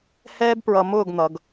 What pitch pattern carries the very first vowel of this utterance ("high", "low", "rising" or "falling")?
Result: high